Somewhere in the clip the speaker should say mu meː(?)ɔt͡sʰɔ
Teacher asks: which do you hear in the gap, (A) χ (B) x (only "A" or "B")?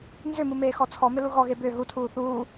B